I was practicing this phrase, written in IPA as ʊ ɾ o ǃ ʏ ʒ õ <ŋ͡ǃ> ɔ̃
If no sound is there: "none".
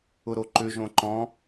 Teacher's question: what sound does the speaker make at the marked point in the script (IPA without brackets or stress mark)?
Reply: ǃ